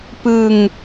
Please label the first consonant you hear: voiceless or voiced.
voiceless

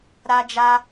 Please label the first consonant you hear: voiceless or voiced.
voiced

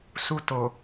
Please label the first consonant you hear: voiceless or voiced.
voiceless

